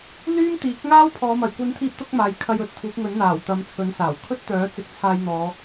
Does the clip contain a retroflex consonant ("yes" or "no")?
no